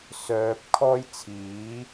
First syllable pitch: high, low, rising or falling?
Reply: low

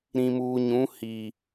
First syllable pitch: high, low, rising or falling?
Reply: low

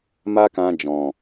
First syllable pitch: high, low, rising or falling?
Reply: high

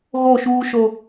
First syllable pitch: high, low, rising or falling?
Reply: falling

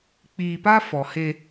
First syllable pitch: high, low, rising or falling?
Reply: low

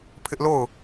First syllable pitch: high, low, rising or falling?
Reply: high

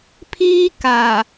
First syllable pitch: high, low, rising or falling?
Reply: high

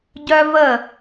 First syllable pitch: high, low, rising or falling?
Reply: high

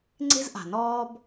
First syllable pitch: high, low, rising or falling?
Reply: high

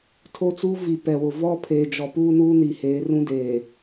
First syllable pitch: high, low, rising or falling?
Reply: high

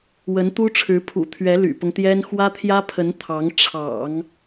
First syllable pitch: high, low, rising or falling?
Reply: rising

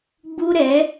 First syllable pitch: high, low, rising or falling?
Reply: high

